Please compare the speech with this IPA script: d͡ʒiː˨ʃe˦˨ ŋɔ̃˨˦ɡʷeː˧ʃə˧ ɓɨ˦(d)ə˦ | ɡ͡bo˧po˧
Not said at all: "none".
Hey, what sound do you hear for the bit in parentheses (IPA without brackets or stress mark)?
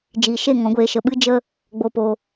d͡ʒ